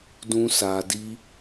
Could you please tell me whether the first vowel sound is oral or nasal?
nasal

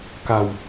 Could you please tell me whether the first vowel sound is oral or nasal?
oral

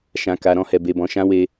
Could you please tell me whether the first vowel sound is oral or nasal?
nasal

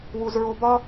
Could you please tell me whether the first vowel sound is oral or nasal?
oral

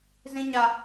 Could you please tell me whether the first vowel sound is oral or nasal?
nasal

